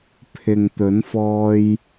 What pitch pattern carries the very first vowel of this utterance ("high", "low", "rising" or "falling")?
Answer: low